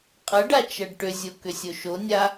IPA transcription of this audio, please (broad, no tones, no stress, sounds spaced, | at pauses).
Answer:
qʼ ʌ ɖ a t͡ʃ ʌ ɖ ʈ ʏ zʲ o k ʏ sʲ o ʃ o nʲ a